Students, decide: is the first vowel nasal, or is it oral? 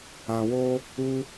nasal